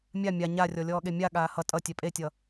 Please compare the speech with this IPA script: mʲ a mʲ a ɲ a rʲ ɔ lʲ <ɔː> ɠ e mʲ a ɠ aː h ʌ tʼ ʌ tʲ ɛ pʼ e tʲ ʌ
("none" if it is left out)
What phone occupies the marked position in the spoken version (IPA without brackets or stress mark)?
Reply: ɔː